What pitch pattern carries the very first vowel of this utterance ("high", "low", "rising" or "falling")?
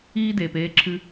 high